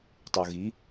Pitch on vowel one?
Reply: low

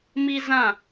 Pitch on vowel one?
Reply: high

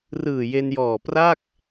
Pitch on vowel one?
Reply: low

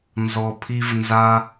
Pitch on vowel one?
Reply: low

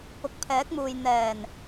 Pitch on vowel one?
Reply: low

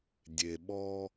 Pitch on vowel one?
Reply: low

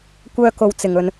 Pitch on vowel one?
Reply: high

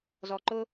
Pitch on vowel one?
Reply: low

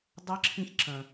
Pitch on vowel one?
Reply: rising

